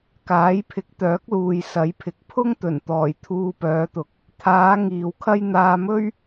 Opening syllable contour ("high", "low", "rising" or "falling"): rising